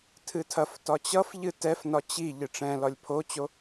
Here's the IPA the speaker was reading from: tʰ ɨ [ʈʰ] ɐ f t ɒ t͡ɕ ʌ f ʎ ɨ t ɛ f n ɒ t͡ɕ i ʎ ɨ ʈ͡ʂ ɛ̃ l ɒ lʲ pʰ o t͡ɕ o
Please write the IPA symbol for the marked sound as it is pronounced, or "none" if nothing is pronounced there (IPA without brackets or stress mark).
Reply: tʰ